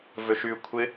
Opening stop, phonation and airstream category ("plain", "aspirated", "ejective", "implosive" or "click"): aspirated